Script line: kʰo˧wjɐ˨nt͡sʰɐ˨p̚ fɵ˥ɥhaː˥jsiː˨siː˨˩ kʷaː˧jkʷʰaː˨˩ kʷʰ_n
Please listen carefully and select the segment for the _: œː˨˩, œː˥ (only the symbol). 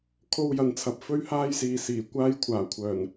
œː˨˩